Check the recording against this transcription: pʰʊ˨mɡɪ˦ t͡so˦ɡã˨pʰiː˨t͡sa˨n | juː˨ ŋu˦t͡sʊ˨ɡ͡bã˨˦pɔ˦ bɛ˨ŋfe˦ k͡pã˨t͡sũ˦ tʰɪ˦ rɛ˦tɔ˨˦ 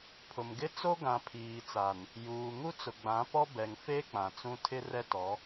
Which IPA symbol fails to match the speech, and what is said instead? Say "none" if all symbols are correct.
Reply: none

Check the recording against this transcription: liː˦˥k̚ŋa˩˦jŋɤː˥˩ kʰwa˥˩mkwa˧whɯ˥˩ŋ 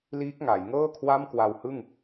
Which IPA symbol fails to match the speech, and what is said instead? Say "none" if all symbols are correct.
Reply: none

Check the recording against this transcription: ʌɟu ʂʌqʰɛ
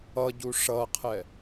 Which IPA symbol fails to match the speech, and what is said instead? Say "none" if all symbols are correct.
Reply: none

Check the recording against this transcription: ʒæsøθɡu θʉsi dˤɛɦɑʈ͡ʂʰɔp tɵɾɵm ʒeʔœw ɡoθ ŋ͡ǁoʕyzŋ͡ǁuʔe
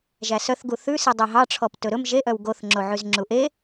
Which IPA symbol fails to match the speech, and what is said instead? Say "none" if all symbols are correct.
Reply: ø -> œ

